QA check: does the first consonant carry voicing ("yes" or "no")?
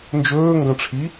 yes